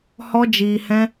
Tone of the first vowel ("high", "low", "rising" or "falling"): high